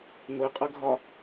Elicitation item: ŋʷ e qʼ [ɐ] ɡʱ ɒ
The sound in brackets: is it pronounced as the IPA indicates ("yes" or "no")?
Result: yes